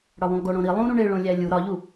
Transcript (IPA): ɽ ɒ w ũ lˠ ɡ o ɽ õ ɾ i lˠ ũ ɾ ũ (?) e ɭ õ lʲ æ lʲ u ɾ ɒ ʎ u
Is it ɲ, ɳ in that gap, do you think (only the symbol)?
ɳ